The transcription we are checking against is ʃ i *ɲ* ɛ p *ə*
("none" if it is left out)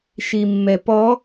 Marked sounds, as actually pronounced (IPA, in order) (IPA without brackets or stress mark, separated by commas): mː, ɔ